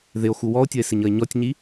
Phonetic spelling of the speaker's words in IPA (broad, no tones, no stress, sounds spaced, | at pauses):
ð ɪ o̯ x u w ɔ o̯ tʲ ʌ e̯ s ɪ ɲ ʌ e̯ ɲ ɔ tʲ ɲ i